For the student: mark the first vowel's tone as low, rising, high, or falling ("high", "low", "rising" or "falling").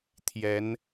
rising